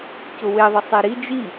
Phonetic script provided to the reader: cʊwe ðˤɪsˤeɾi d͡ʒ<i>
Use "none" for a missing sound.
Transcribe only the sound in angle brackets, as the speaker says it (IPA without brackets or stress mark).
i